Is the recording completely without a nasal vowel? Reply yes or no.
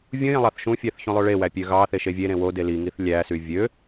no